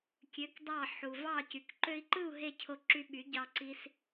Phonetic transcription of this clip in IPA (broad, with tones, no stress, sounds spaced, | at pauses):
kʲ ø˩˥ k dˤ ɑ˥˩ ħ u˩ v ɑ˥˩ c y˩ k ǃ ø˧ i̯ ǃ ɯ˥˩ u̯ ɦ e˥˩ cʰ o˧ ǁ y˧ ɓ y˩˥ ɟ ɑ˧ ǀ i˧ s